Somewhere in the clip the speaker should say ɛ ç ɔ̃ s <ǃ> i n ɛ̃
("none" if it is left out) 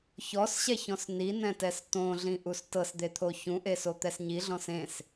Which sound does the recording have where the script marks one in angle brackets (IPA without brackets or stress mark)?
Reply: n